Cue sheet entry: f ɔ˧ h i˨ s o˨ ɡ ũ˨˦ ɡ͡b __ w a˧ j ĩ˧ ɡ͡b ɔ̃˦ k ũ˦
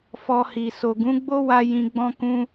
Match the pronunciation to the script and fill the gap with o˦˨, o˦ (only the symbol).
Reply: o˦